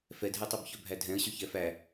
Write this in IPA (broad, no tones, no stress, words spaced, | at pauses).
fɛdʱɛtˤœb çœbʱædʱɛ̃ə̯ɕø çɛfæ